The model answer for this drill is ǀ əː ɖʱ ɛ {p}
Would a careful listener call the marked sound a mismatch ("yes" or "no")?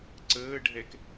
yes